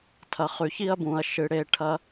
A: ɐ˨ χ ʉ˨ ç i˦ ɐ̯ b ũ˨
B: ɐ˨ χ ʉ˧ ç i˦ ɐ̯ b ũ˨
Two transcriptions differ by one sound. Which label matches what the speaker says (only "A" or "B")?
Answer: A